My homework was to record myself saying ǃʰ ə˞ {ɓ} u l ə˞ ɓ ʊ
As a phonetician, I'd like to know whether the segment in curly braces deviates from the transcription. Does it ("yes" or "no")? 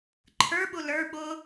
no